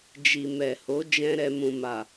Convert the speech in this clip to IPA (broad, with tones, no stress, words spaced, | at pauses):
d͡ʒi˨mɛ˨ho˨˦ d͡ʒɛ̃˦ɾɛ˧ mũ˨ma˨